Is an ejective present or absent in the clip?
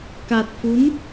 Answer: absent